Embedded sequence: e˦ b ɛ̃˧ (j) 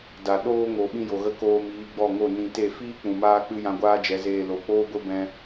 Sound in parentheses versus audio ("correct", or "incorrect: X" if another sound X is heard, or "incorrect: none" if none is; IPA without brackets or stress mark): incorrect: none